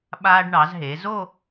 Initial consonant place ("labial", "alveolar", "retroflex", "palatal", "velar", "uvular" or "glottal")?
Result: labial